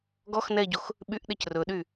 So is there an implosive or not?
yes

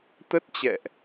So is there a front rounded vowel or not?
no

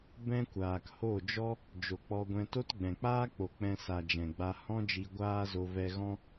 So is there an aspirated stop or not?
no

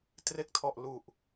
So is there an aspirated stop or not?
yes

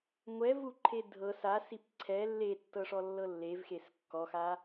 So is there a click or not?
yes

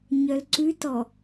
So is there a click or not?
yes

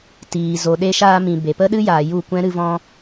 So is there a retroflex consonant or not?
no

